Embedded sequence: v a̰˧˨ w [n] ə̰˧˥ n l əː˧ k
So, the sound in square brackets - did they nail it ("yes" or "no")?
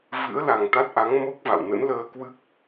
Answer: yes